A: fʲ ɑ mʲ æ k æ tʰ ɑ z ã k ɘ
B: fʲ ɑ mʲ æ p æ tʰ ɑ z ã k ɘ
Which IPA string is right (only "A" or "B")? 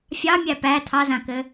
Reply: B